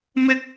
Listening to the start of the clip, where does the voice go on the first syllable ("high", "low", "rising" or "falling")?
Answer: high